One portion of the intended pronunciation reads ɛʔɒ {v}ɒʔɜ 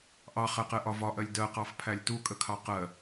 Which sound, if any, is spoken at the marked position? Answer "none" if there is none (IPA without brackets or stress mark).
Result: v